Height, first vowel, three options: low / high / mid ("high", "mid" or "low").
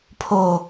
mid